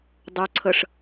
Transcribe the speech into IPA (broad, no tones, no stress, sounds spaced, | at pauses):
dˤ u ǀʰ ɤ ʂ